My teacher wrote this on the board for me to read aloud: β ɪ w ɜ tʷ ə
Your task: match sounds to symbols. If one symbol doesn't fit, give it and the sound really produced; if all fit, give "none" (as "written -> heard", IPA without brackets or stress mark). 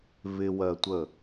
none